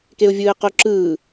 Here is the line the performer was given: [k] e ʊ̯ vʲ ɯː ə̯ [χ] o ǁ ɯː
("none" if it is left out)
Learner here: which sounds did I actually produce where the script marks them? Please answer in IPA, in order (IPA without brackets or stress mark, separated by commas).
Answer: k, q